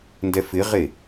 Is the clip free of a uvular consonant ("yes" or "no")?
no